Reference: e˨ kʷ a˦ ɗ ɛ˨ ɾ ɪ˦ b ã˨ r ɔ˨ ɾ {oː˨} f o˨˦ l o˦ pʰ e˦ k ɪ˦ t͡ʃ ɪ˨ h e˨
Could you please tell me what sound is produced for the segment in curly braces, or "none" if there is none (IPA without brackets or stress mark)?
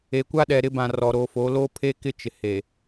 o˨